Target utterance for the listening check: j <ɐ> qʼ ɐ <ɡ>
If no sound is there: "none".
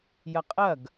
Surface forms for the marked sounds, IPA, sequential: ɐ, ɡ

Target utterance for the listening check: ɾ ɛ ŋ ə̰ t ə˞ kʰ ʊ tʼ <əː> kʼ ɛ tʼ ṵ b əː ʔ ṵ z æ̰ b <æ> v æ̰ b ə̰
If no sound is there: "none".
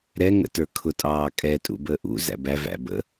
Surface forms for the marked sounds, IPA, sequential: ɑː, æ

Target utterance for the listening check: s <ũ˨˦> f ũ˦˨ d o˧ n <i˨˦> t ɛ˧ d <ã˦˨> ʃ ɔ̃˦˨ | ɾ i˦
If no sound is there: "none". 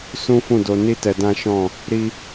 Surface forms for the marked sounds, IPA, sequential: ũ˦, i˦, ã˦

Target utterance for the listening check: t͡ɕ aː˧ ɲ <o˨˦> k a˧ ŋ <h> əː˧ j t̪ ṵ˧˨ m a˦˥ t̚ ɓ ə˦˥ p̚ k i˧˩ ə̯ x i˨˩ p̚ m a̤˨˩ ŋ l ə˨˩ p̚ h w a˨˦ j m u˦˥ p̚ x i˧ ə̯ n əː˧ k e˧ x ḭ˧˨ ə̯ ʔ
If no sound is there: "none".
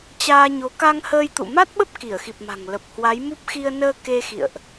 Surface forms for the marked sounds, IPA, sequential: o˨˦, h

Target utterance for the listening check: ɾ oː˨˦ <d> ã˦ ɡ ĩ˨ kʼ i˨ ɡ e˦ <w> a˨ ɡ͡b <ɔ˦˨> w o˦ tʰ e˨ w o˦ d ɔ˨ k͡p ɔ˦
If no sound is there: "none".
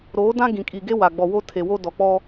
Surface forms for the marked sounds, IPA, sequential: d, w, ɔ˨

